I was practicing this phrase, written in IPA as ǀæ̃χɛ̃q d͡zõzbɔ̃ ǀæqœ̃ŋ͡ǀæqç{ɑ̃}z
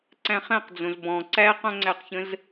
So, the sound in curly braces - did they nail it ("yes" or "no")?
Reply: no